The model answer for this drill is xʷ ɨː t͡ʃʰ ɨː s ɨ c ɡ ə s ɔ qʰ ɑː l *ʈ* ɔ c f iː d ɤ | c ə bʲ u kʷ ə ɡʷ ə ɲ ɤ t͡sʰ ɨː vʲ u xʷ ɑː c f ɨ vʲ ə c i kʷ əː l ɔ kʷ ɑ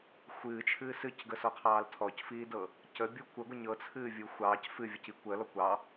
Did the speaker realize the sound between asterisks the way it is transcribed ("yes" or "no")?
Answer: no